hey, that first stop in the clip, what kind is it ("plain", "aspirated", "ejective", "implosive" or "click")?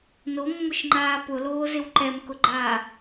click